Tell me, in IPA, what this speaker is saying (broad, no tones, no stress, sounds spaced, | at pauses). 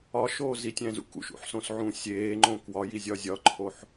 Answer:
ɒ ʃ oː z i tʲ æ̃ z ṵ k ṵ ʃ ṵ ħ s õ s ʕ ũː sʲ eː ŋ͡ǃ õ k w ɒ j i zʲ ɒ zʲ ɒ ǃʰ o ħ